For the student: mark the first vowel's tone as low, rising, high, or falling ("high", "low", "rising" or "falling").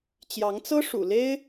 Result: rising